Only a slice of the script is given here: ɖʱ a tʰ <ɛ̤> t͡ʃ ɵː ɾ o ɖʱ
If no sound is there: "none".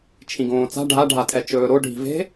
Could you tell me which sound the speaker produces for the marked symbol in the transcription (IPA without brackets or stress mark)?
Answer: ɛ